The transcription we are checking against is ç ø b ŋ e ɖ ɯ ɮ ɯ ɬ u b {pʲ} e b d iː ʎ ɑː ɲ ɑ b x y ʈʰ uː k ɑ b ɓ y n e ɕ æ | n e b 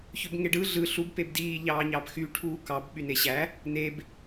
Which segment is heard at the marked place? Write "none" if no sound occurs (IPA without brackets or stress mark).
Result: p